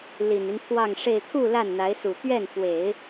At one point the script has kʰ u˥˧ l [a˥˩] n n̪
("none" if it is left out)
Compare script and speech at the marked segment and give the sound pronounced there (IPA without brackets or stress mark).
a˥˩